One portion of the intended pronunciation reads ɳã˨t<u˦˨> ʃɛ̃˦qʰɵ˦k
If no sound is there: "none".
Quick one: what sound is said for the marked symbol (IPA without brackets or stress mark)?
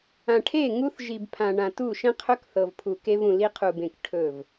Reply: u˦˨